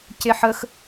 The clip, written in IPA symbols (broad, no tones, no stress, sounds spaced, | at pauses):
c e ħ ə x